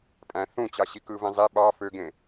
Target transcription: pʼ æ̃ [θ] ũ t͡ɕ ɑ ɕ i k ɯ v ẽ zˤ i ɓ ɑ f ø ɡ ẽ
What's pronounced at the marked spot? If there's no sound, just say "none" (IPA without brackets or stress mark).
θ